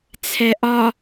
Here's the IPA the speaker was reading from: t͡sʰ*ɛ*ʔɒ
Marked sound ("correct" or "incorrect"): correct